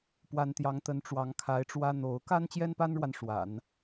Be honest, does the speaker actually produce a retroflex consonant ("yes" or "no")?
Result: yes